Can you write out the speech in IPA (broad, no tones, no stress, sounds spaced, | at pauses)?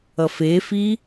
ʌ f e f i